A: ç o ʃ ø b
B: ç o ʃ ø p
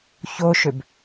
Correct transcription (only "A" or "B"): A